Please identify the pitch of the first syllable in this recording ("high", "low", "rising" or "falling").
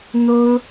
high